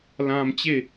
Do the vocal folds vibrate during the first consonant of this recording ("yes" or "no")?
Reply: yes